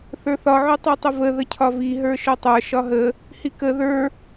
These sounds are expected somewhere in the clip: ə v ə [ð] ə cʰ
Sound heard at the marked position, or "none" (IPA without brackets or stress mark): ð